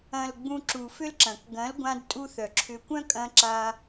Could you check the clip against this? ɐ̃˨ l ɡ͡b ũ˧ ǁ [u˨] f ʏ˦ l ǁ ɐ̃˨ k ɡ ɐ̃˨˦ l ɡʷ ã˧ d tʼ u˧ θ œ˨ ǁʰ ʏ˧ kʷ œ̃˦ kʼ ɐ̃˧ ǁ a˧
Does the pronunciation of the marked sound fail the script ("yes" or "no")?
no